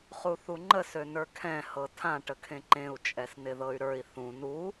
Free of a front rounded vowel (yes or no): no